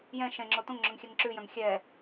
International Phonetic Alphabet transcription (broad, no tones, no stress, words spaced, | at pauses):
jɛ̃ ʃɛ̃ŋ͡ǁo tõŋŋ͡ǁɵŋxʲɛŋ ǁʉjœ̃ŋ xʲɛ